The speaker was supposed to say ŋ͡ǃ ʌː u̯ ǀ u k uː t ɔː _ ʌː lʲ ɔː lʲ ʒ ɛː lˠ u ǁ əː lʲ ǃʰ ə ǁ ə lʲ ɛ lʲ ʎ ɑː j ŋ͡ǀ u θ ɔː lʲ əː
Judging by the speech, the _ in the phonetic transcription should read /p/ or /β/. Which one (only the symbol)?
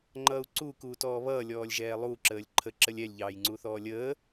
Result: β